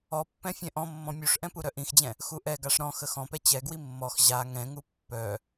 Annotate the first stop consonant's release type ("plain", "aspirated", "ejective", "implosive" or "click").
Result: plain